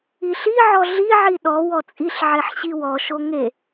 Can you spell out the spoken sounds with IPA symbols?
i ɬ i ʕ ɔ ɮ i ʕ i ɗ ɔ w ɔ t͡sʼ i ɬ ʕ e ħ ɕ i w ɔ ʃ o ŋ e

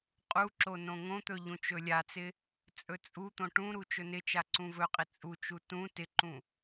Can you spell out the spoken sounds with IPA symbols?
qʼ u ǁ o n õ ŋ õ t̪ ɵ ʎ ũ t͡ʃ ɵ lʲ a t͡s ɪ | t͡sʼ ɵ t͡sʼ u t̪ õ ʈ ũ ɾ u t͡ʃ ɵ n ɪ t͡ʃ a ǀ ũ v ɵ qʼ ɪ t͡sʼ u t͡ʃ u t ũ t ɪ ǃ ũ

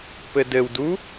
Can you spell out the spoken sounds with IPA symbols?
p ɘ d ɘ w d u

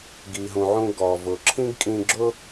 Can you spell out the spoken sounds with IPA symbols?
ɡ i˩ ɦ ũ˩ ʕ ũ˧ ɡ ɔ˩ v ʊ˩ ǁʰ ĩ˥ ɡ kʼ ĩ˧ ɡ͡ǁ ʊ˥

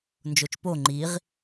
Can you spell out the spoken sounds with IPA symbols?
n d͡ʒ o t͡ʃ p o ŋ͡ǃ i ʁ

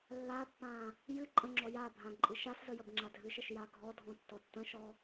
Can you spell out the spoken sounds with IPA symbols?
lː a pː ã | j ɨ ǃʼ ə̃ ŋ͡ǁ ɔ j a bʱ ã ǃʼ ɨ ʃ a s z ə j ə b ŋ͡ǁ a dʱ ɨ ʃ ə ʃ j a ɡʱ ɔ dʱ ɔ̃ tː ɔ tː ə̃ ʃ ɔ

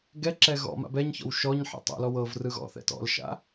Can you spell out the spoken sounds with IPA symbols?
ɡ ɛ ǁ ɛ ɣ ɔ̰ m a̰ b ɛ ɲ ç ɔ̰ w ʃ ɔ ɲ ħ ɛ̰ tˤ o̰ l ɔ w ɤ v r ɯ ɣ ɔ̰ θ ɛ̰ t ɔ̰ l ʃ a̰

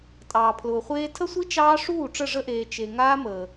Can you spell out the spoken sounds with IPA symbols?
tʼ ɑː˨ pʰ l ʊː˨ χʷ eː˦ tʰ ə˦ sʷ i˦ t͡ʃ ɑː˦ ʂ uː˦˨ ʈ͡ʂ ə˦˨ ʐ ə˦ ʔ eː˨ t͡ʃ e˨ ŋ aː˦ m əː˨

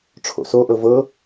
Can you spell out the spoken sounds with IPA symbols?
ʈ͡ʂʰ o̰ s o ʔ ɤ v ɤ

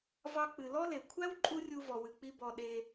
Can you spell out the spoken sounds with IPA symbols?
v ɑ˧ k͡p ɨ˨ l ɔ˦ l e˨ kʷʰ æ˦ w ǃʼ u˦ rʲ u˧ v ɔ˨ w ɨ˨ k͡p i˧ b ɔ˧ ɗ e˧

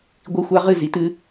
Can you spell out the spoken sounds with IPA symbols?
ɡʷ i˦ xʷ a˦ ʁ ɨ˦˨ z i˨ t ɨ˦

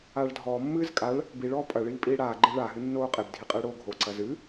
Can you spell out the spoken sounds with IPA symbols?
aː ɭ dʱ ɔː mː ɨː z kʼ a ɭ | b i ɭ ɔː pʼ ɐ ɭ iː pʼ iː ɽ aː ɡ͡ǃ e ɭ a ɦ ɨ nː oː qʼ e b dʱ i qʼ ɨː ɽ oː ɡʱ o ǀ ɐ z ɨ

